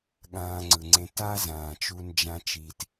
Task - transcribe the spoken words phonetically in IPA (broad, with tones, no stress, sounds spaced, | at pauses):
ɠ ãː˧ ŋ͡ǀ ɯ˩ ŋ͡ǀ ẽ˧ t a˥ z ãː˩ t͡ʃ u˧ n d͡ʒ ã˧ t͡ʃ i˩ t